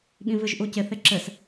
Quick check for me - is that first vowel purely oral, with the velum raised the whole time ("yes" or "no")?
no